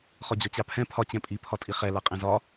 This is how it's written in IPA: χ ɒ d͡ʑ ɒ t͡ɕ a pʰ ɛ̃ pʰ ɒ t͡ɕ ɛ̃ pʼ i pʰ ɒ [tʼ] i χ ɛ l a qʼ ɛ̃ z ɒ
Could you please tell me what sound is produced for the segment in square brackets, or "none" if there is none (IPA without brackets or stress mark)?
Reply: tʼ